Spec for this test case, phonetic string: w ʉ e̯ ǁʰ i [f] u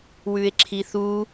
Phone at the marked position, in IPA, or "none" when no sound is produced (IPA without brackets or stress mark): θ